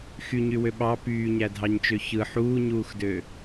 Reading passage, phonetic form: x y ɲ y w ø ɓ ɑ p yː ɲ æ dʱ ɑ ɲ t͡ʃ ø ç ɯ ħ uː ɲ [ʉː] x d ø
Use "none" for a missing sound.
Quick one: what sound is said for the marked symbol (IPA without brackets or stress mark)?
uː